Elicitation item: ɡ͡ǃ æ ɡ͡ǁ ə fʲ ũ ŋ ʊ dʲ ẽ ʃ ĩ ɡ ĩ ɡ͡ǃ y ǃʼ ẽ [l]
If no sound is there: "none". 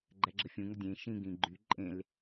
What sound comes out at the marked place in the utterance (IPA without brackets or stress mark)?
l